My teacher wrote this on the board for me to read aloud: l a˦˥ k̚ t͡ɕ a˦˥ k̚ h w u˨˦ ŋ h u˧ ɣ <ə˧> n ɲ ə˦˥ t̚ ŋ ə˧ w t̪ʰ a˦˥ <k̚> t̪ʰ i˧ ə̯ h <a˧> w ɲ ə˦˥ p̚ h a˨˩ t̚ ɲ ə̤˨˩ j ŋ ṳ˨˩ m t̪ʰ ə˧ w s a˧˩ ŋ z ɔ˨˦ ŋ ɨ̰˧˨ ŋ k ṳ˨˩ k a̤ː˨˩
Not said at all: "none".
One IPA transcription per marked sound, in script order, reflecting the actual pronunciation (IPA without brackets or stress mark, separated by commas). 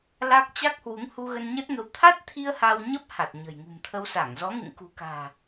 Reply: ə˧, t̚, a˧